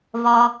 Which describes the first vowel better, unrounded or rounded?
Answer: rounded